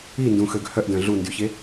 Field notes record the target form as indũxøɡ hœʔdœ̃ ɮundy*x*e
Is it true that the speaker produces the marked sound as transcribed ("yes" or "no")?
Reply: no